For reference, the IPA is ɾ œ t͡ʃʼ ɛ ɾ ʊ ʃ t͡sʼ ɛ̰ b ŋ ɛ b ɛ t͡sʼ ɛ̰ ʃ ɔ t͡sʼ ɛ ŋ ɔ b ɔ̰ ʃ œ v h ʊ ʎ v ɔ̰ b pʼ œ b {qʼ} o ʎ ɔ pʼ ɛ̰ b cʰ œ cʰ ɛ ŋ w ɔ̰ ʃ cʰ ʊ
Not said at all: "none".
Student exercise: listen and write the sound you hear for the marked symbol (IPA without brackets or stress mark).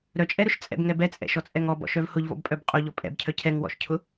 qʼ